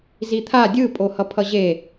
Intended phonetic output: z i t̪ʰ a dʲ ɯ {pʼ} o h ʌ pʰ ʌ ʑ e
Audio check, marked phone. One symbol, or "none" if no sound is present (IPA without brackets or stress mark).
pʼ